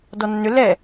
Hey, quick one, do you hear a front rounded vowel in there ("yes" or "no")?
yes